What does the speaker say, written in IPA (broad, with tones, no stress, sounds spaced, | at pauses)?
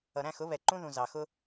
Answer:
ʌ˨ ɾ æ̃˦˨ x ʊ˨˦ β ɛ˨ ǃ ũ˦ ð ũ˨ z ɑ˨ x ʊ˦